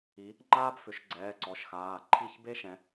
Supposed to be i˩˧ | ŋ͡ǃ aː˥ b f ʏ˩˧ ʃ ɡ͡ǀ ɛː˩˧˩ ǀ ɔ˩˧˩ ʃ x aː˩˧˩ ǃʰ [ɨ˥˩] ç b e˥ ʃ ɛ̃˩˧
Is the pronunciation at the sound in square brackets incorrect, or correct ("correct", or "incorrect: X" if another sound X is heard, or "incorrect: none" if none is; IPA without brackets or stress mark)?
incorrect: i˥˩